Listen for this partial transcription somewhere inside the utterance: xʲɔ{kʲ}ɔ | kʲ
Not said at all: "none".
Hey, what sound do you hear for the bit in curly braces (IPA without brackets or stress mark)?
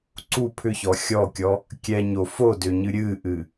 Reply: kʲ